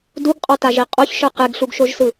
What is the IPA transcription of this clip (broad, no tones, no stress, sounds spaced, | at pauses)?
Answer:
d u ɡ qʼ ɔ t a ʒ i qʼ o ç ʃ ɯ q e ɡ ɬ u ɡ ʃ o ʒ s ɯ